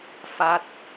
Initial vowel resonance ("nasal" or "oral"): oral